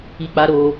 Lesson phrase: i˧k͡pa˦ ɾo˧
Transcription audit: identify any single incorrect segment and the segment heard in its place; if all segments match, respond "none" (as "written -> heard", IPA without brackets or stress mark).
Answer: none